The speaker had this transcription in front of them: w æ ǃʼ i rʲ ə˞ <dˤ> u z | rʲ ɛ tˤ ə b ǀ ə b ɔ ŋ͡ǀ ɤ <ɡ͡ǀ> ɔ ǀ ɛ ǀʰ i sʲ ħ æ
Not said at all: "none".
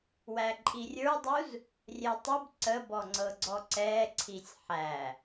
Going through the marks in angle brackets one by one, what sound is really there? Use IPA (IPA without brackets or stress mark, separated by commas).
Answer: dˤ, ɡ͡ǀ